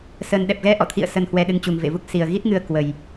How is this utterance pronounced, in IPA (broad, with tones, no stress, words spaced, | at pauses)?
sə˨˩n ɗɛ˨˩p̚ɣɛ˧ʔɔ̰˧˨t̪ʰḭ˧˨ə̯ sə˨˩nhwɛ˨˩ ɗɨ˧ŋt͡ɕu˨˩ŋvḛ˧˨vu˦˥k̚ si˨˩ə̯ɣi˦˥t̚ŋɨ˧ə̯ kwə˨˩j